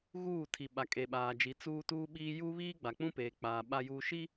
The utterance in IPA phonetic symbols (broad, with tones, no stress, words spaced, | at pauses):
ɣuː˦˨tʰi˨ ɓa˨ kʼe˨ɓaː˨d͡ʒi˨˦ t͡suː˦tuː˦ɓiː˦ ju˦ βiː˦ɡ͡ba˨k͡pũ˦ peː˨k͡paː˨ ɓa˨juː˨ʃi˦